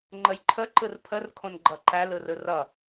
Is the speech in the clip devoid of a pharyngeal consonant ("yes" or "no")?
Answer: yes